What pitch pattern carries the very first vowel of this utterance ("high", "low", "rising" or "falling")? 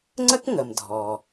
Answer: high